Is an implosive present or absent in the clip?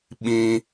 present